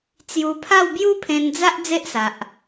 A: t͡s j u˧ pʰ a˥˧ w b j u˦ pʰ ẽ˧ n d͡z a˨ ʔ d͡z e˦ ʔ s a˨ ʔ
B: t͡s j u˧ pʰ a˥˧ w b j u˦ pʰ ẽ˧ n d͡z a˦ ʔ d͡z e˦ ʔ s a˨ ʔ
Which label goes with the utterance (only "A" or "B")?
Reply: B